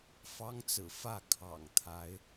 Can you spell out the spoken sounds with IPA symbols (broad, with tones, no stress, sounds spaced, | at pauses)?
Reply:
f ɑ˦ ŋ t͡s ɹ̩˨˩ f ä˥˨ kʰ ɑ̰˨˩ ŋ t̪ʰ a˨˦ ɪ̯